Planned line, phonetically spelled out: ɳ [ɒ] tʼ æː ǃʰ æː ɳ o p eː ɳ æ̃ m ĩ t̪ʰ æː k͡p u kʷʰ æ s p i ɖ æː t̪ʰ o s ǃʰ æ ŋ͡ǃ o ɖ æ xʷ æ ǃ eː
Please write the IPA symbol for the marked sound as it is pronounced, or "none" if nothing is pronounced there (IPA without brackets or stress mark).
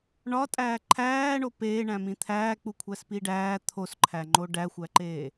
ɒ